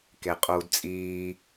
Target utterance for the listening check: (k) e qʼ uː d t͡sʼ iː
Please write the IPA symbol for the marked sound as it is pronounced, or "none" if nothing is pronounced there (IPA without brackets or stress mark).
k